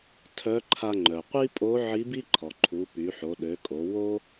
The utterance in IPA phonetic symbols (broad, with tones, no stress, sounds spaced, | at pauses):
tʰ œ˧˥ ǃʰ a˧ ŋ͡ǃ œ˩ qʷ i˥ pʼ o˧˥ ʕ i˧˥ b i˥ ǃʰ ɔ˩ ǃʰ u˩˧ p y˩˧ ħ o˩˧ ɗ ø˩˧ kʼ o˩˧ w o˥